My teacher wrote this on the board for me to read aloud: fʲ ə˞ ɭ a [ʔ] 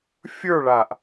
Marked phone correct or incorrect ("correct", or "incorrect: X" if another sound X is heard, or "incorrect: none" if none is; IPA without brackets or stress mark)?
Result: correct